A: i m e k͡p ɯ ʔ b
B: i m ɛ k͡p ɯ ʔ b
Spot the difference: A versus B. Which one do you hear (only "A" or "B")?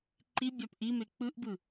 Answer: A